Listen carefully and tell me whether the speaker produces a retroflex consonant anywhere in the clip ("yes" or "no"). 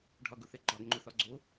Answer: yes